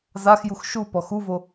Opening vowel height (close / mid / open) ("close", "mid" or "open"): open